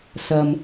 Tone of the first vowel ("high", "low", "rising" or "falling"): low